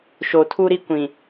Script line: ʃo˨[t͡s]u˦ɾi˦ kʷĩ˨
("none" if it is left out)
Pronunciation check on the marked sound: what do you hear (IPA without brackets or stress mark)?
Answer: tʰ